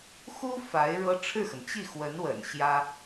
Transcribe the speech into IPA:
x u˥ f a˧˥ ɪ̯ ɻ ɤ˥ ʈ͡ʂʰ ɻ̩˥˩ x ə˩ n t͡ɕ i˥˩ x w ə˧˥ n w ə̰˨˩ n ɕ j ä˥

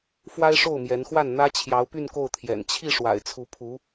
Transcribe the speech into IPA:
f w a˥ ɪ̯ ʂ o˥˩ ʊ̯ m j ɛ˧˥ n x w a˥˩ n n̪ ä˥ t͡ɕʰ j ɑ˧˥ ʊ̯ p y˥˧ n k o˥˩ ʊ̯ t̪ʰ j ɛ̰˨˩ n t͡ɕʰ i˥˩ ʂ w a̰˨˩ ɪ̯ t͡sʰ u˧˥ pʰ u˧˥

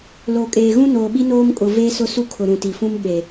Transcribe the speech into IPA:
l o˨ kʼ eː˨ ɣ ũ˦ n oː˨ ɓ i˦ n oː˦ m kʼ ʊ˨ v eː˦ s ʊ˦ s u˦ kʰ ʊ˨ ɾ ũ˨ t i˨ f ũ˦ m ɓ e˨

